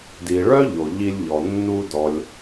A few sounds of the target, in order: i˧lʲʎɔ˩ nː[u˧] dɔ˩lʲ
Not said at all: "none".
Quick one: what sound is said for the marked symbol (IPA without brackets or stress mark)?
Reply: u˧